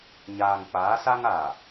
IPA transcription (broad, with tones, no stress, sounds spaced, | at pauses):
ɲ aː˨ ŋ k͡p a˨˦ s a˦ ŋ a˨